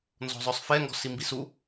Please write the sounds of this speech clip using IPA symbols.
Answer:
n z ɔ̤ zˤ œ sˤ f ɛ ŋ ɡ ɔ̤ s i m b i s u

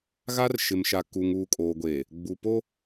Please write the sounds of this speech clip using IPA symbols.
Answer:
ɣ a˦ r ʃ ɪ˨ m ʃ a˨ k uː˨ ŋ uː˨ kʼ oː˨ ɡʷ eː˨ | ɡ͡b u˨ p o˦

